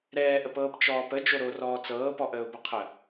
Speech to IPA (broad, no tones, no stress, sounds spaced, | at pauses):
ɾ ɛː ʔ ə p ɤː p t͡ʃ ɔː p ə d͡ʒ o ɾ o r ɔː t͡s ɤː p ɔ ʔ əː ʊ̯ b ə qʰ ə